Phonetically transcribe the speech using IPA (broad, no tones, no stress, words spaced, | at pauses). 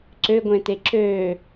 ǀøɡʷẽte ǁø